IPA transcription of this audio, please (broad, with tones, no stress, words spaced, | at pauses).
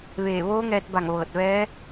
ʋeː˧˩ʋoː˧˥ŋɛː˧t̚ba˧˩ŋ ʋɤː˧˩t̚ʋɛː˧˥